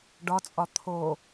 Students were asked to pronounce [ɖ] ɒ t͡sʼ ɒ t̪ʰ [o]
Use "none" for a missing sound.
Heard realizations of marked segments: ɖ, o

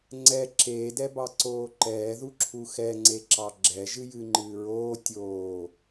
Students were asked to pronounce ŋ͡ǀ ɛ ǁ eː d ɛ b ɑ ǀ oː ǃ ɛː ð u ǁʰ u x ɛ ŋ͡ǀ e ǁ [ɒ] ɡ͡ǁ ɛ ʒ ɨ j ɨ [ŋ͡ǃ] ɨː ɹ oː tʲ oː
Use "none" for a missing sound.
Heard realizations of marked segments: ɑ, ŋ͡ǃ

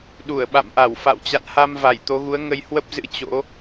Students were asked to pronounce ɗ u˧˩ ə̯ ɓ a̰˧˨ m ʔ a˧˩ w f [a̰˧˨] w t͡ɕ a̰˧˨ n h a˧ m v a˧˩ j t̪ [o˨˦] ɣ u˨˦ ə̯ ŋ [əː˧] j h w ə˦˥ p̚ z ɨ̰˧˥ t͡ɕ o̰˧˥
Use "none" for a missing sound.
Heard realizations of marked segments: a̰˧˨, o˨˦, ə˧

